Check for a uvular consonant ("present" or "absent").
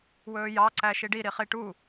present